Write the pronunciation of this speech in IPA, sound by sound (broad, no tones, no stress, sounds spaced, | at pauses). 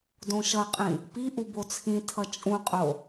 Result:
d õ ʃ ʌ qʼ ĩ | p i ʔ u b o t͡sʰ ĩ tʰ ʌ t͡ʃʼ ũ qʼ o